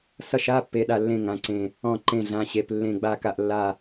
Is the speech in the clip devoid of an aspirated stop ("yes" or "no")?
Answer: yes